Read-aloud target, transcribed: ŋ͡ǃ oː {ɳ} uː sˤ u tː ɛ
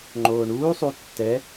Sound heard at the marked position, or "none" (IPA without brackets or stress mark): ɳ